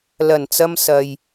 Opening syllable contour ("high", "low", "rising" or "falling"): low